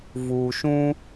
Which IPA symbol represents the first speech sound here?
v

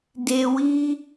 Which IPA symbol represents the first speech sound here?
d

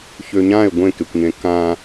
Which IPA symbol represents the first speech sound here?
ç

